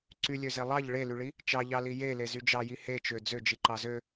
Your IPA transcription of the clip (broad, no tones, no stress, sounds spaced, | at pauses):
ǀ y lʲ ø z e lˠ ɑ ʎ ɭ e l y ɭ i | t͡ʃ ɑ ʎ ɑ l i j e l e z y d͡ʒ ɑ j i h e t͡ʃ ø d͡z ø d͡ʒ i ǃ ɑ z ø